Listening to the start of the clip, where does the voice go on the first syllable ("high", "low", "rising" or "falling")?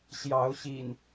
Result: rising